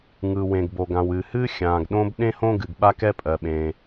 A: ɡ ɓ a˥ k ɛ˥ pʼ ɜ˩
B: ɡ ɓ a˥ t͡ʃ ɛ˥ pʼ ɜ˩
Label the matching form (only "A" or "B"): A